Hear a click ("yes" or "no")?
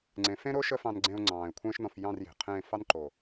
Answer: yes